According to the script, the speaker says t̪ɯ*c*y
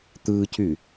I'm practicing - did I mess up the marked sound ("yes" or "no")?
no